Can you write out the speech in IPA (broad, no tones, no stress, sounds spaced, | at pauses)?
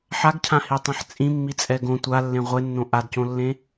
ħ a ɡ cʰ ã h i tˤ ɛ̃ ħ t͡sʼ ĩ mː i t͡sʼ ɛ ɡ õ tʷ a lː ẽ ʁʷ e nː õ ʔ a d c õ lː ẽ